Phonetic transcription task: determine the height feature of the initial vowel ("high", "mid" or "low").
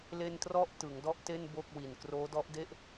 mid